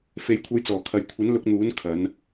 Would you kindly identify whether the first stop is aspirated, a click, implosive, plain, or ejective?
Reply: aspirated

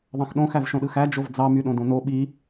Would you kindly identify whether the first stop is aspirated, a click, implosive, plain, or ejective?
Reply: implosive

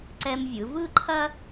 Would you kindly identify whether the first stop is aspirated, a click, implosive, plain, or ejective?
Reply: click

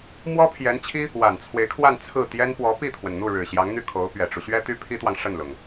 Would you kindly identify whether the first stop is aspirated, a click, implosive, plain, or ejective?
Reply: aspirated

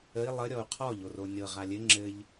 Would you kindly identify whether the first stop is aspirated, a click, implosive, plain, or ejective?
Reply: aspirated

